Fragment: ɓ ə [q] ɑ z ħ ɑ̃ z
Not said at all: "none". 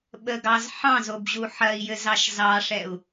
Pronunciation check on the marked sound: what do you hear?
ɡ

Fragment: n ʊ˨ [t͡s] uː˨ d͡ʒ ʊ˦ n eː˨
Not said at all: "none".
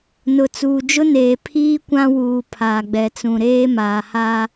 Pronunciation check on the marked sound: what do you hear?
t͡s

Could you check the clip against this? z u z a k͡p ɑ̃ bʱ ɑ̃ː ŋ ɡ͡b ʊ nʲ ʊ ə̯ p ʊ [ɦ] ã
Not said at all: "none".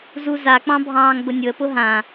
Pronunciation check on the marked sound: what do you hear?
ɦ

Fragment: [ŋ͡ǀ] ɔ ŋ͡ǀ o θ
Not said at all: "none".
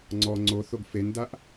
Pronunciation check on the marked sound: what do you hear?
ŋ͡ǀ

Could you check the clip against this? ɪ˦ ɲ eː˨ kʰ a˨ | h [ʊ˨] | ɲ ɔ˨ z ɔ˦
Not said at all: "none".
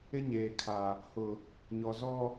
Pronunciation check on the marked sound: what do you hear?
ʊ˨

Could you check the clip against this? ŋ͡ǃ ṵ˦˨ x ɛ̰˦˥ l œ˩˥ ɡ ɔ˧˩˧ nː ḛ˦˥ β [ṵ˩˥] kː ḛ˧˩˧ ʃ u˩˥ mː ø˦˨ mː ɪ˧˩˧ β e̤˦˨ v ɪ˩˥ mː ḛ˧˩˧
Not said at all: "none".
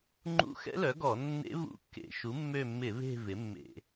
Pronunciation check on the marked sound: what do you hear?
ṵ˦˥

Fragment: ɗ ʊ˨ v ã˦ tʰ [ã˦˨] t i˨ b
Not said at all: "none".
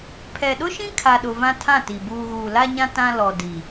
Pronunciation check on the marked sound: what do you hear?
ã˦˨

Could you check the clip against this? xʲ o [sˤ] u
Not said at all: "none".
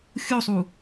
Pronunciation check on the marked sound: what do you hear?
sˤ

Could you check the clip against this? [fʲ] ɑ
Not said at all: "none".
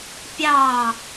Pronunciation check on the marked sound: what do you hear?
pʲ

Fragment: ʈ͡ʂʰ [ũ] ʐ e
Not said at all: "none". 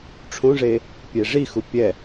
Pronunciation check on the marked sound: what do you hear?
ũ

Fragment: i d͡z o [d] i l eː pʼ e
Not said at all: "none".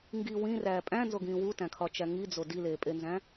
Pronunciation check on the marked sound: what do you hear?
d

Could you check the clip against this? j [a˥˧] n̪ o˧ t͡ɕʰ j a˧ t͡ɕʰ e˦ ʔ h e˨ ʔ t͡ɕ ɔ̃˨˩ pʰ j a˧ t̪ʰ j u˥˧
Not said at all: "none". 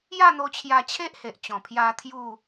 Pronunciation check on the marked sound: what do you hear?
a˥˧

